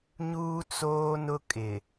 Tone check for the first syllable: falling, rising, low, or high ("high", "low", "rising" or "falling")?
high